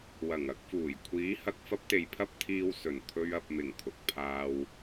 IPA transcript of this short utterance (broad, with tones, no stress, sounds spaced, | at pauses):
w ɐ˨˩ ŋ ɐ˧ k̚ f uː˨˩ j kʷʰ iː˨˥ h ɐ˧ k̚ f ɐ˥ p̚ t̪ e˨˧ j pʰ ɐ˥ p̚ t̪ʰ iː˧ w s ɵ˨˩ n t̪ʰ ɵ˧ ɥ ɐ˨ p̚ m ɪ˨˩ ŋ t̪ʰ ʊ˨ k̚ pʰ aː˧ w